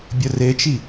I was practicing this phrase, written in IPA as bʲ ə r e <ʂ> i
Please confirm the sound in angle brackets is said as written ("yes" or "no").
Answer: no